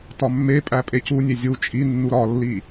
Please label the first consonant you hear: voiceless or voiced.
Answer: voiceless